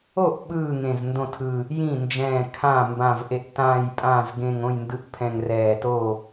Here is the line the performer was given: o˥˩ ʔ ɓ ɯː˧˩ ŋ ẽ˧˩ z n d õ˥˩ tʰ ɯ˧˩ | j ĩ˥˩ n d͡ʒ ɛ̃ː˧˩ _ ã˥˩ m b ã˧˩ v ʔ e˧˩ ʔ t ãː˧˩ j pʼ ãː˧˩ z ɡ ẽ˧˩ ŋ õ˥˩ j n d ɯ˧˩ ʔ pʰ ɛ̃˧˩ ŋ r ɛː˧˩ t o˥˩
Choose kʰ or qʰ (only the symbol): kʰ